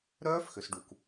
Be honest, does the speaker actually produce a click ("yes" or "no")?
no